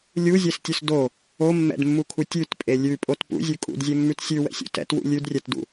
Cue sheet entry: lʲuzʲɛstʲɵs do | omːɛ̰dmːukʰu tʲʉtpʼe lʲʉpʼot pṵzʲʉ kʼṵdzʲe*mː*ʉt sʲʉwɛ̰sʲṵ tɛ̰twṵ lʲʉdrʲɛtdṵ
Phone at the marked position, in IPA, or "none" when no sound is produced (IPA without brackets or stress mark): mː